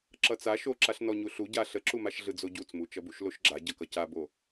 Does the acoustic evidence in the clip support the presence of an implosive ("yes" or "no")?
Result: no